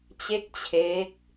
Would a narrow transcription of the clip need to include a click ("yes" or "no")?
no